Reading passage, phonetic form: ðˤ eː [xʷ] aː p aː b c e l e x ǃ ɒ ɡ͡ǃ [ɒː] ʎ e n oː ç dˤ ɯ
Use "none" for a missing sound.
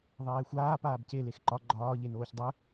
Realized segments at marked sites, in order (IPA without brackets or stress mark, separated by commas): xʷ, ɒː